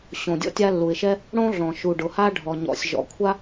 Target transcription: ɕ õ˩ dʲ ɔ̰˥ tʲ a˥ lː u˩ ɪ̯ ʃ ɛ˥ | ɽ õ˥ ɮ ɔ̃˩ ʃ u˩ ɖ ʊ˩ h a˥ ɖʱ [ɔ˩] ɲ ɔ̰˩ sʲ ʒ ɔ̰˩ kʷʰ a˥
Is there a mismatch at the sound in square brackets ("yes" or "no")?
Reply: no